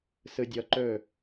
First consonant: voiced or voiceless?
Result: voiceless